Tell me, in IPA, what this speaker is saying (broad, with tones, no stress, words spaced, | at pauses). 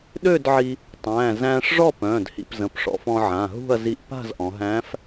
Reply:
ɗø˥˨dʕi˧ | tˤæ̃ː˩˧˩zæ̃ː˧ʂʐɔ˥˨p œ̃ː˩˧˩dhḭ˩˧pzə̃˩˧˩pʂɔ̰˩˧f ɔ̃˧ʕã˩˧˩ɦṳ˥˨ɐ̯ zi˧ʔpa̤˥˨zʔɔ̃˩˧ɦæ̃ː˧˥f